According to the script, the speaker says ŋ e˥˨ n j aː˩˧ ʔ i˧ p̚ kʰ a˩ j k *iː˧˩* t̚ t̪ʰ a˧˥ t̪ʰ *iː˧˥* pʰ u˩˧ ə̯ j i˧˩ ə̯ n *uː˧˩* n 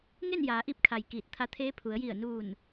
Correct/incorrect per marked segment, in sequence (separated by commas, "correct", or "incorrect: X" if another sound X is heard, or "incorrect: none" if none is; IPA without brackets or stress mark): correct, incorrect: eː˧˥, correct